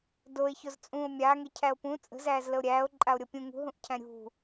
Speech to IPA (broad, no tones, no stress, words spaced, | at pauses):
doe̯ çozt͡sʼũo̯ mʲaːŋe cʰæo̯pũ t͡sʼə̤zæːz ləo̯ɾʲæːo̯ ǃʼao̯ɾʲɤpʲũ ŋṳɦũʔcʰæ̃ ɾʲṳ